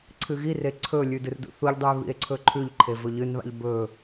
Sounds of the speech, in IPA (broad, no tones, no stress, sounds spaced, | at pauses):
ǀʰ ɨ ɣ i r e ǀʰ ɵ lʲ ʉ d ɨ r d ṵ θ u ʎ dˤ ʉ e̯ β ḭ e̯ ǀʰ ɵ ǃʰ ʉ ʎ ǃʰ e v ɵ ʎ ɨ n β a̰ ʎ b ɵ